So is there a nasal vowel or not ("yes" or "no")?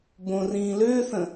yes